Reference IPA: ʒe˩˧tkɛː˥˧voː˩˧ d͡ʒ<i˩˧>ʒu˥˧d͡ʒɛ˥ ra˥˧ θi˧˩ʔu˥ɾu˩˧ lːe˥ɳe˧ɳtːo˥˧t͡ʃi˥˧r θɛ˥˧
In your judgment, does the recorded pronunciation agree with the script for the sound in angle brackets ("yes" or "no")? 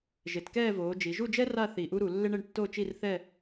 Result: yes